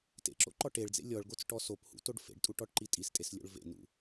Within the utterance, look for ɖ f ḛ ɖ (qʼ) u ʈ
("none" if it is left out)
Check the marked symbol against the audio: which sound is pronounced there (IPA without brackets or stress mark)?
tʼ